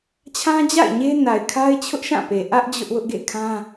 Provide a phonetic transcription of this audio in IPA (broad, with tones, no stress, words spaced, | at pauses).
t͡ɕʰã˦d͡ʑa̰˦˨ɪ̯ ɲe˦na˨ɪ̯kʰa˦ɪ̯ t͡ɕʰʊ˦ʔʃã˦˨pe˨ ʔä˦ʔ d͡ʑʊ˦ʔwʊ˦ʔɡḛ˦˨kʰã˦